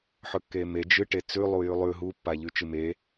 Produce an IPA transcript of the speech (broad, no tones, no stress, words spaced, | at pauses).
ħɵkːeme d͡ʒɨʈe t͡sʉlˠujʉ lˠʉ ɦupːaʎʉ t͡ʃɨme